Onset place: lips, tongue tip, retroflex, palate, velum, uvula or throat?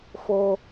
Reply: lips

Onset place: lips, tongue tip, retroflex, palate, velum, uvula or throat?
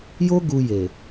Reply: palate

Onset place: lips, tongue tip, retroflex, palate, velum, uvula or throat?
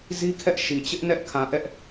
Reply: tongue tip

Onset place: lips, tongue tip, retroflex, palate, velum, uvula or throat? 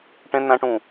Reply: retroflex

